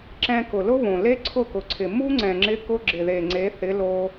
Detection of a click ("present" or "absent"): present